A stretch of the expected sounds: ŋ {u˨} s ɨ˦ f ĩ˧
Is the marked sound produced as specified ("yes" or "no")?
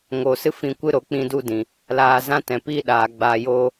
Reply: no